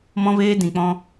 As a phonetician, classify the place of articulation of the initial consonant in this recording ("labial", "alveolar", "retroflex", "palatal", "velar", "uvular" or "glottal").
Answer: labial